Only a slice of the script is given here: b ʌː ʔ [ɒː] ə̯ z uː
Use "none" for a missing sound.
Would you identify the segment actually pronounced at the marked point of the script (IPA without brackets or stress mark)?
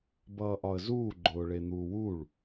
ɒ